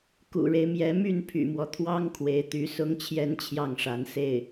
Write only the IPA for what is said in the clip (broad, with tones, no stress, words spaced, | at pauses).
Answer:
kṵ˨˩ɻe˦ɪ̯mjɛ˧˥ my˥˩npʰy̰˨˩mwɔ˦t̪ʰwɑ˥ŋ kʰwe˧˥ɪ̯t̪y˧˥sʊ˥ŋ t͡ɕʰjɛ˥nt͡ɕʰjɑ˥˩ŋʂa˧˥n se˥˩ɪ̯